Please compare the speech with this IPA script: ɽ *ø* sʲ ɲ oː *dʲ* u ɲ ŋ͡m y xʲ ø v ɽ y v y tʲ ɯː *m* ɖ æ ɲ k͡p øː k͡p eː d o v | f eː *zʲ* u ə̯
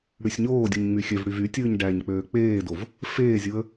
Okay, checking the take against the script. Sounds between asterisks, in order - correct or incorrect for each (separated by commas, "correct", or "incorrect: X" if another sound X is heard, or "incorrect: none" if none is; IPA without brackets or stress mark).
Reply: incorrect: y, correct, incorrect: ɲ, correct